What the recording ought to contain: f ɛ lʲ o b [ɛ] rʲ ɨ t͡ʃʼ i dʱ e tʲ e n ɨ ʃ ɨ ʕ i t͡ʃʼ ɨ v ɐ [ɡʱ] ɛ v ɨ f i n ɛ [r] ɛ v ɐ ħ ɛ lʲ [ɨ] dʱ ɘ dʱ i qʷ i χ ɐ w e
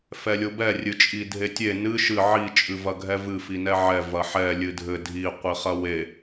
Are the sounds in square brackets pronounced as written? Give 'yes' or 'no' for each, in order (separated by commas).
yes, yes, no, yes